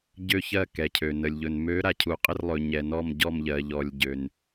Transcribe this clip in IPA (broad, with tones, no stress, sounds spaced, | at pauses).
ɟ ø˧˩ ç ɜ˧˩ k ɛ˩ cʰ ø˩ n ə˩ lʲ ʎ ɵ˩ n m ø˨˦ ɾ a˩ cʰ u˩ qʼ ə˧˩ r lˠ ɵ˩ ɲ ɛ˩ n ɔ˧˩ m ɟ ɔ˧˩ m ʎ ɜ˩ ʎ ɔ˩ lʲ ɟ ø˩ n